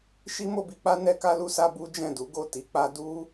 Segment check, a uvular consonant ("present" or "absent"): absent